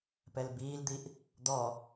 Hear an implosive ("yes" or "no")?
no